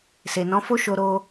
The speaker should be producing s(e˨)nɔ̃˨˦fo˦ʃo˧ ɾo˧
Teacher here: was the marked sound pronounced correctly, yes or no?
yes